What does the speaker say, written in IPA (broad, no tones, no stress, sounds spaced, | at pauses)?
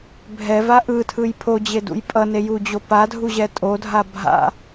bʱ ɛ v a ʔ ɯ tʰ ɯ j pʰ o d͡ʑ e d ṵ j pʼ ʌ n e j u d͡ʑ o p a dʱ u ʑ ɛ tʼ o dʱ a bʱ a̰